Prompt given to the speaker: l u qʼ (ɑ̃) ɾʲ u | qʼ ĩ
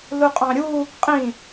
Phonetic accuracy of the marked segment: correct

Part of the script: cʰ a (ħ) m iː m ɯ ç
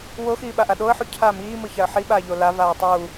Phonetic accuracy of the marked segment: incorrect: none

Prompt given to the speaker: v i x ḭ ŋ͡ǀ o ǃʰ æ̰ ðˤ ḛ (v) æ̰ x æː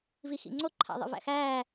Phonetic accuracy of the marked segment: correct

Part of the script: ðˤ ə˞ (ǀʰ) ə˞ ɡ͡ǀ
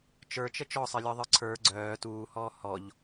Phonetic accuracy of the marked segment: correct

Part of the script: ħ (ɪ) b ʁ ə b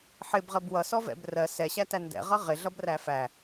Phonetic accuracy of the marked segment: correct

